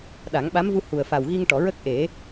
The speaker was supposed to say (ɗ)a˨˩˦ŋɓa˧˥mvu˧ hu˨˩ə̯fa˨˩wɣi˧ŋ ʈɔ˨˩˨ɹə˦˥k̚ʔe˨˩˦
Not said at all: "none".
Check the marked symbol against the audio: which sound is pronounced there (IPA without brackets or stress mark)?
ɗ